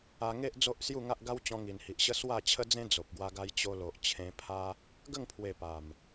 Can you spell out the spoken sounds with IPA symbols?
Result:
a˧ ŋ e˦ ʔ d͡z o˦ ʔ s j u˥˧ ŋ a˦ ʔ ɡ a˦ w t͡ɕ ɔ̃˧ ŋ i˨˩ n h i˨ ʔ ɕ ə˦ s w a˥˧ t͡ɕʰ ə˦ d͡z ẽ˦ d͡z o˨ p̚ ɡ w a˧ ɡ a˧ j t͡ɕ o˧ l o˨ ʔ t͡ɕʰ ẽ˧ pʰ a˦ | ɡ ə˥˧ ŋ pʰ w e˨˩ p a˨˩ m

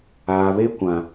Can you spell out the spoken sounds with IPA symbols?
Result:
aː˨ β e˦ kʷ ã˨

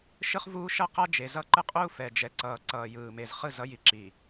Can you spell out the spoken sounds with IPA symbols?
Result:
ʃ ɯ˦ χ v uː˦ ʃ ʌ˦ q a˦ d͡ʒ e˨ z ʌ˦ ǃ ɯ˦ qʼ uː˦ f ɛ˨ d͡ʒ ɛ˨ ǀ ʌː˨ ǀ ʌː˨ j ɯː˨ m e˨ z χ ɯ˦˨ z ʌ˦ j i˨ ǁ i˨

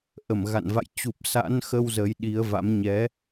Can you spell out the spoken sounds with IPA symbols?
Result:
ʔ ə˧˩ m ɣ a̰˧˨ n v a̰˧˨ j t͡ɕ u˨˩ p̚ s a̰˧˥ n x ə˧ w z ə˨˦ j ɗ i˨˦ ə̯ v a̰˧˥ m ɲ ɛ˨˦

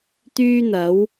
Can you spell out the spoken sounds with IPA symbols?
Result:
t̪ yː˥ n̪ ɐ˨˥ w

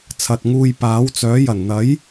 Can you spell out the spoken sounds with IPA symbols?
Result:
t͡sʰ ɐ˨ t̚ ŋ uː˧ j p aː˨˥ w t͡s œː˨˥ j ɐ˨˩ n n̪ ɐ˨˥ j

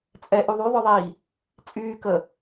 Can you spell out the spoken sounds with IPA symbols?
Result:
t͡sʼ ɛ ʔ y ðˤ y ðˤ œ ðˤ iː | t͡sʼ yː k ə

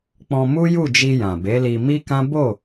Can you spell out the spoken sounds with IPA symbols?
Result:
k͡p ɔ̃˧ m u˦ j u˦˨ d͡ʒ i˧ j ã˨ b e˨˦ l i˧ m i˦ k ã˦ b o˦˨

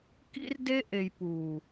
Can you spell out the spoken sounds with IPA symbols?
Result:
k ḭ˦ r d e˦ ʔ e˨ j p uː˨

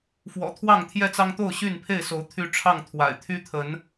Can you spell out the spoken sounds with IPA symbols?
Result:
f w ɔ̰˨˩ t̪ʰ w ɑ˥˨ ŋ t̪ʰ j ɛ˥˨ t͡s ɑ˦ ŋ t̪ o˥˨ ʊ̯ ɕ y˥˨ n pʰ e˥˨ ɪ̯ s o˨˦ ʊ̯ t̪ʰ y˦ ʈ͡ʂʰ ɑ˥˨ ŋ t̪ʰ w a̰˨˩ ɪ̯ t̪ʰ y˦ t̪ʰ ə˨˦ n

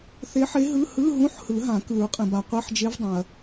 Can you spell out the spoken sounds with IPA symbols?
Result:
θ e˧˥ ħ e˧˥ ɦ ɯ˧˥˧ h ɯ˧˥˧ ɦ ũ˧˥˧ ħ h ɯ˨˩˦ ɦ ã˨˩˦ k ɯ˨˩˦ ɹ qʼ ẽ˩ b a˩ qʷ ɛ˧˥˧ ħ d͡ʒ e˧˥ v dˤ ẽ˩ ɐ̯

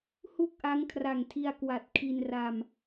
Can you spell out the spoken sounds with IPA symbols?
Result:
h u˥˩ k̚ ʔ a˦˥ ŋ kʰ r a˨˩ ŋ tʰ i˧ a̯ k w a˨˩ t̚ kʰ i˧ n r a˧ m

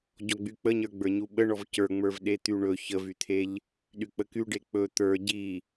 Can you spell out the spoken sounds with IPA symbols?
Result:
ɟ ɔ ɡ͡b y k͡p ə ɲ ə˞ ɡ͡b ə˞ ɲ u ɓ ə ɳ ɔ v c ə˞ ŋ͡m ə˞ v ɗ e t̪ y ɳ ɵ ç ə v y t̪ʰ e ʎ | ɗ y k͡p ə k y ɖ e k͡p ɵ t̪ ə˞ ɟ i

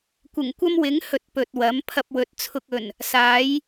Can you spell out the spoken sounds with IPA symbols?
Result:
kʷ ɪ˨˩ ŋ kʷ ɐ˥ m w ɪ˨˥ ŋ h ɵ˨ t̚ p ɵ˨ t̚ w ɐ˨˥ m pʰ ɐ˧ p̚ w ɵ˨˥ t̚ t͡sʰ ʊ˧ k̚ ɵ˨˩ n | s aː˨˥ j

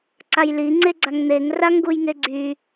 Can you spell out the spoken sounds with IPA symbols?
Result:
ǀ a j l i ŋ͡ǀ e ɡ͡ǀ a ŋ n̪ e ŋ r a ŋ ɡ u j ŋ e ɡ͡ǀ y

